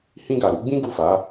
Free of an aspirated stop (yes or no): yes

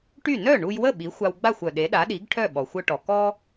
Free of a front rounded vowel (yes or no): no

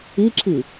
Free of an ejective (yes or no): yes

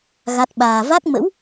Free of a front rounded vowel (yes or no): yes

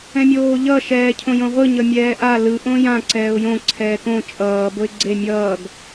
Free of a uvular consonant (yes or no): no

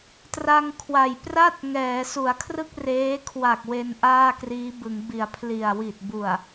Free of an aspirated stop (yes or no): no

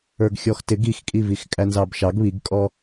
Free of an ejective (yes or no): no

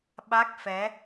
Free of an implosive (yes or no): no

